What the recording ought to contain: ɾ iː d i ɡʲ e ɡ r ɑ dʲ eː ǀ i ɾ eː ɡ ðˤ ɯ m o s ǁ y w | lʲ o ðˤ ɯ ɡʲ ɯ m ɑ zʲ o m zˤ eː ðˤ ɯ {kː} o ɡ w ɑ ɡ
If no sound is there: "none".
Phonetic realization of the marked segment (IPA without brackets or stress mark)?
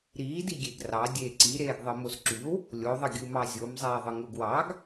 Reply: ŋ